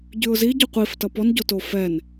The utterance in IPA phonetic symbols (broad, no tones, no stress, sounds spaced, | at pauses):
ɟ ʉ ʊ̯ z i ɟ ʉ qʷ i f t ʌ p ɔ n ɟ o t o f ɛ n